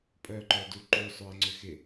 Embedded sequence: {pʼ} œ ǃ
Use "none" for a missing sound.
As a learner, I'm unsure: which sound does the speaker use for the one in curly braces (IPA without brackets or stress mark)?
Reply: pʼ